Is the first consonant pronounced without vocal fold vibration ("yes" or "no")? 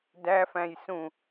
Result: no